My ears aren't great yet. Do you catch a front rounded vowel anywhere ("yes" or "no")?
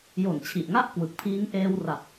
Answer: no